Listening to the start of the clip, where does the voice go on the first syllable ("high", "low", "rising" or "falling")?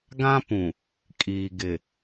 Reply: high